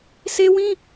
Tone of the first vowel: high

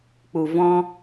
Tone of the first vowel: low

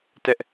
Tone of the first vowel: high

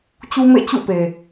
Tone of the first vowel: high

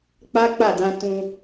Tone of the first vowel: high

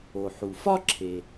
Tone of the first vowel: low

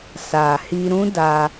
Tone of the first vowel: low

